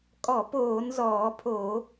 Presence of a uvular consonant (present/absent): absent